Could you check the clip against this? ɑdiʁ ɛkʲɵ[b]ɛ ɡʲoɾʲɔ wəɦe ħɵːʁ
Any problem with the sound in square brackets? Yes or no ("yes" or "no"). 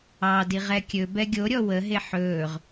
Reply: no